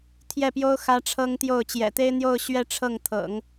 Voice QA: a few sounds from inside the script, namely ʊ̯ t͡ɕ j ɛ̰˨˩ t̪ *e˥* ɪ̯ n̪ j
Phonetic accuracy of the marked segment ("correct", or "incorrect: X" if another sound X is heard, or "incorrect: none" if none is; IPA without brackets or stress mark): correct